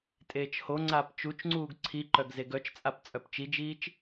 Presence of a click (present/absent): present